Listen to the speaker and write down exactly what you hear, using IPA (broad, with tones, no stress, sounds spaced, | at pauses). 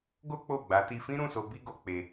ɡ o˦ k͡p o˦˨ ɡ͡b a˨˦ t i˧ f ĩ˦ ɾ ũ˦˨ s o˧ b i˧ ɡ o˨ k͡p e˧